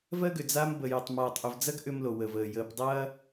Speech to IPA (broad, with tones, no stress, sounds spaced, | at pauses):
v ɜ˦ ɡ ʏ˨ d͡z aː˦ m b ə˨ j ɐ˨ tˤ m aː˨ tˤ ʔ ʏ˨ v d͡z ɐ˦ ɡ ʔ ʏ˦ m l o˨ w ə˨ v əː˨ j əː˨ p dˤ ɐː˦